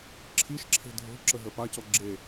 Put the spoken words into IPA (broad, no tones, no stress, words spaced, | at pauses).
ǁʰiʃǁʰe̤ dʱo̤ǁəɦə pacɔ ɡ͡ǁe